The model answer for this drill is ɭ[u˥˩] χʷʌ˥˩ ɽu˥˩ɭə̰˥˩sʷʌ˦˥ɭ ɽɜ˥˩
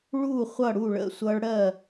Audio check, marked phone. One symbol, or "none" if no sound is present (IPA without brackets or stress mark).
u˥˩